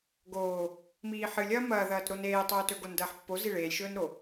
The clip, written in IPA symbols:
ɡ oː | m iː ħ ɨ lʲ ɐː m ɐː ð ɐː t ɾ o n eː tˤ ɵː t ɵ ɡ o n d ɐː ħ pː o z i ɭ eː lʲ ʃ ɵː n ɾ o

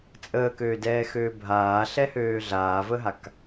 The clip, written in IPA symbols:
t͡sʼ əː k øː d ɛː x øː bʱ aː ɬ ɛ h øː ɮ aː v ə ɦ a k

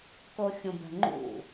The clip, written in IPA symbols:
k o xʲ ũ b ɛ̤ ŋ͡ǃ ṵ

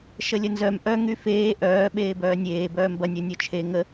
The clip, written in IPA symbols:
ʃ ə lʲ ə n z œ m ʔ œ ŋ y f eː ʔ œː ɓ eː b œː nʲ eː b œː m b ɐ nʲ œ nʲ œ t͡ʃʰ e ŋ ə

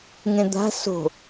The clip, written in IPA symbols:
ŋ ẽ d̪ a̤ s o̤

